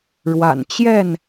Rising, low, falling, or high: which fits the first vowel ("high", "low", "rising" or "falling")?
low